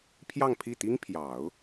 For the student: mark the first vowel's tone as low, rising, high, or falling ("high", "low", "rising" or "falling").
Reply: falling